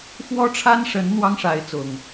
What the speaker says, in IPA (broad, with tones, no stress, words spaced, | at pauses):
fwɔ˦ʈ͡ʂʰa˦nʂə˨˦n n̪wɑ˦ŋʂa˨˦ɪ̯ t͡sʊ˨˩ŋ